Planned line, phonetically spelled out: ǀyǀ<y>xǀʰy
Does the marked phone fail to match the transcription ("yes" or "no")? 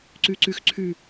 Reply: no